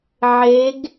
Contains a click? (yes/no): no